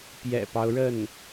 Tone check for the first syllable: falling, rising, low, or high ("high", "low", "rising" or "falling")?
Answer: low